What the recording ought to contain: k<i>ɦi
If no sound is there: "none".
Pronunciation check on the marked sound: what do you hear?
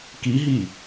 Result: i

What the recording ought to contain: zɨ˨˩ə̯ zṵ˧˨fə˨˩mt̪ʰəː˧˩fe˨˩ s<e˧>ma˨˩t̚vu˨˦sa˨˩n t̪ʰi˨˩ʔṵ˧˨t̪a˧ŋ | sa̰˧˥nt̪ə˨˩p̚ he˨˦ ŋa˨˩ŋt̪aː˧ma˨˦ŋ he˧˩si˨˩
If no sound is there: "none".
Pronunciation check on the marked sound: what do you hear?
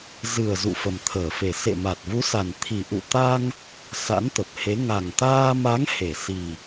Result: ḛ˧˨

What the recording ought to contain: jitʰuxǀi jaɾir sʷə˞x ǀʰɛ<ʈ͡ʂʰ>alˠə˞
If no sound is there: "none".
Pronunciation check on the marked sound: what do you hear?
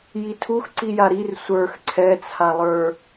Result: t͡sʰ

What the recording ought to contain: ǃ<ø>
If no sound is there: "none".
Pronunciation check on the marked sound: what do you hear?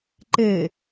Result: e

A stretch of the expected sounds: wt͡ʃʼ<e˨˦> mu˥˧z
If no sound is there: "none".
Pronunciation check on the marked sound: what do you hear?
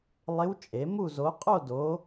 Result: e˨˦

